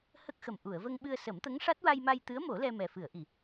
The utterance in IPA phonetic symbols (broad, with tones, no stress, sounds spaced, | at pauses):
h ə˦˥ k̚ x ə˨˩ m ʔ u˨˩˨ ə̯ v ə˧ ŋ ɓ ɨ˧ ə̯ s ə˨˩˦ m t̪ ə˧˥ ŋ ʂ a˦˥ t̚ w a˧ j m a˧ j t̪ ɨ˧˥ ə̯ m o˨˩˦ l ɛ˧ m ɛ˨˩ f ɨ˨˩˨ ə̯ ʔ i˨˩˨